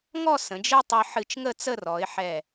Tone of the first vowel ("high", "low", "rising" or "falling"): falling